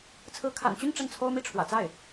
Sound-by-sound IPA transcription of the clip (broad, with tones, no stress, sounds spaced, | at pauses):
t͡sʰ ɹ̩˧˥ kʰ a̰˨˩ n t͡ɕ y˥˧ n ʈ͡ʂ ə˥˩ n t͡sʰ o˥ ʊ̯ m i˥˩ ʈ͡ʂʰ w ä̰˨˩ t͡s a˥˩ ɪ̯